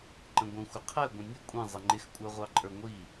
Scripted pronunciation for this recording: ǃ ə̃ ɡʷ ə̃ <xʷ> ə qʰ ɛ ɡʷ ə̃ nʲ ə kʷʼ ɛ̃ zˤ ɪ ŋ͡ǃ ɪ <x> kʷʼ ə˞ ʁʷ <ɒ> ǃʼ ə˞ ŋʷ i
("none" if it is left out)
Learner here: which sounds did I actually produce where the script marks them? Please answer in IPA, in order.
xʷ, x, ɑ

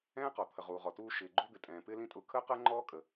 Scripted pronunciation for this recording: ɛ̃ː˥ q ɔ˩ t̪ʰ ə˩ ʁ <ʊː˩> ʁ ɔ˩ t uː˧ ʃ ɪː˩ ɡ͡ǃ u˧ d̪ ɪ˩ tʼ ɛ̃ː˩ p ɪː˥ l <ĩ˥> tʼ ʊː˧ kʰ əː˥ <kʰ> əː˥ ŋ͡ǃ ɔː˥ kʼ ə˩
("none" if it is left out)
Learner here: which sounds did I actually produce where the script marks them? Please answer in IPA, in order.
uː˩, ĩ˥, q

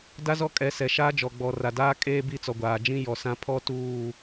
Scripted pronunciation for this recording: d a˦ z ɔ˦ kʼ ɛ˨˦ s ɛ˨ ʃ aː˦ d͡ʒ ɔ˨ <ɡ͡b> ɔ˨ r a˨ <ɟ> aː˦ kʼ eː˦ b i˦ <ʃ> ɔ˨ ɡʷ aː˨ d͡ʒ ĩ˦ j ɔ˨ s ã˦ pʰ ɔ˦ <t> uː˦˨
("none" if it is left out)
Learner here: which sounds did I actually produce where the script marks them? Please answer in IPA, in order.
ɡ͡b, d, t͡s, t

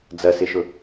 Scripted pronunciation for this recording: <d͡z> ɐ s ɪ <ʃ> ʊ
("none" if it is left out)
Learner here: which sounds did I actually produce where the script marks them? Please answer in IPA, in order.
d͡z, ʃ

